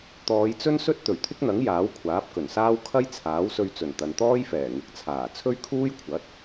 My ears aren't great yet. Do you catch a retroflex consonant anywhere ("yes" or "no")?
no